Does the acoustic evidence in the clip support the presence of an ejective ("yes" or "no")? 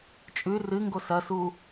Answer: yes